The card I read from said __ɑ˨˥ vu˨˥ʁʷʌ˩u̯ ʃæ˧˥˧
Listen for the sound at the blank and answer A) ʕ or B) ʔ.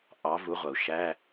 B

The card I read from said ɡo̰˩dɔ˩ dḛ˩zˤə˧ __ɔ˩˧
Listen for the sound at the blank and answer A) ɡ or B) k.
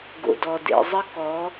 B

